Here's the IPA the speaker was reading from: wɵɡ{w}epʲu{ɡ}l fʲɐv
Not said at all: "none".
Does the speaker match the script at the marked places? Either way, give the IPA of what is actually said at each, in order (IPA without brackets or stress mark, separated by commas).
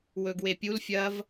w, none